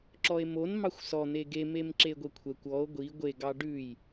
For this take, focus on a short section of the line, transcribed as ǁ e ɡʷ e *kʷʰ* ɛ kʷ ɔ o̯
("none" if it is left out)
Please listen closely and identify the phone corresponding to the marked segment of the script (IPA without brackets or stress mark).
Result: kʷʰ